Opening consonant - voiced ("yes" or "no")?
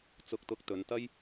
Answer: no